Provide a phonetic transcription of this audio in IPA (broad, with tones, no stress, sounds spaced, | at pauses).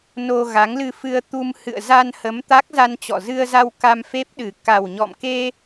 n o˧ ɣ a˨˦ ŋ l ɨ˧ f ɨ˧ ə̯ t̪ u˧ m h ɨ̰˧˨ ə̯ z a˧ n h ə˨˦ m t̪ a˦˥ k̚ z a˧ n t͡ɕ ɔ̰˧˨ z ɨ˧ ə̯ z a˧ w k a˧ m f e˦˥ p̚ ɗ ɨ˨˩ k a˨˩ w ɲ ɔ̰˧˨ m k e˧